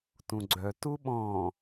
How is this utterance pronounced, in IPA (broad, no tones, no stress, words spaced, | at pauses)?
tũɡ͡ǀœtu ɓɔ̃